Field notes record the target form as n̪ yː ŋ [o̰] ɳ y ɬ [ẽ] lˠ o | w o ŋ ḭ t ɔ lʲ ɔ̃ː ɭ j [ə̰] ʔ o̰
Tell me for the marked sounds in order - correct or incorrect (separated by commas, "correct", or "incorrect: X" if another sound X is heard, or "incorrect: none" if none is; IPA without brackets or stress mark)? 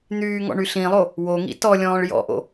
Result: incorrect: ɔ̰, incorrect: ĩ, incorrect: ɔ̰